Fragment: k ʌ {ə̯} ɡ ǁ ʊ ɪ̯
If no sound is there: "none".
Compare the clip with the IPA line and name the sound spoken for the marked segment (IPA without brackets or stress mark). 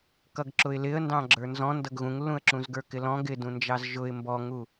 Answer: none